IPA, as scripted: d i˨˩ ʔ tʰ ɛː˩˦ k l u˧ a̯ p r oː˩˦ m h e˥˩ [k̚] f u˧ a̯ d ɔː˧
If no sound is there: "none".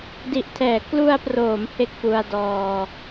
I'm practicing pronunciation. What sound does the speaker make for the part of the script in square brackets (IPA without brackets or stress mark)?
k̚